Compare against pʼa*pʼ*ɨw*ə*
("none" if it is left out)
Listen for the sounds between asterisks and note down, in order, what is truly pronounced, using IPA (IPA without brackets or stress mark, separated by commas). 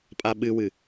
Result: ɓ, ɨ